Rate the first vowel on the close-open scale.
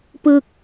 close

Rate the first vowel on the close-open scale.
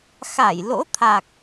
open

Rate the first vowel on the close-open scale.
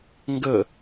mid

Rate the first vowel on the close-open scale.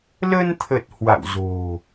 mid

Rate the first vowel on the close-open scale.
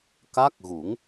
open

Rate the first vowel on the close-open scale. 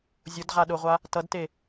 close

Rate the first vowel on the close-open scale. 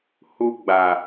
close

